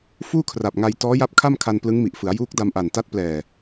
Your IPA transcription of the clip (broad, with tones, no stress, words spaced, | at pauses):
fuː˥˩kʰra˨˩p̚ŋa˧j tɔː˦˥ja˦˥p̚kʰa˥˩mkʰa˧n plɯ˦˥ŋmi˨˩ʔfɯ˩˦a̯ juː˦˥k̚da˧mʔa˨˩n ta˦˥t̚ plɛː˨˩